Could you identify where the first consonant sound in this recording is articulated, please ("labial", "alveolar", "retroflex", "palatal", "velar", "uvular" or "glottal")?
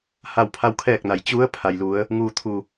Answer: glottal